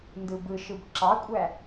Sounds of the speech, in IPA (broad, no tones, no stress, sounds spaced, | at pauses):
n d ɯ b ɯ ʃ ɯ b ǁ ɑ kʷʼ æ